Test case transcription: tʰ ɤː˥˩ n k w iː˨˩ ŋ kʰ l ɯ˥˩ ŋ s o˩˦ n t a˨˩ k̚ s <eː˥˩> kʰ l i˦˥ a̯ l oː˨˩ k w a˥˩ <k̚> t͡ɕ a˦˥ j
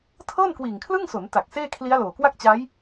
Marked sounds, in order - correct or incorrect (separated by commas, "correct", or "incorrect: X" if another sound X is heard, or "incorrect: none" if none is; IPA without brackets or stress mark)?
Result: correct, correct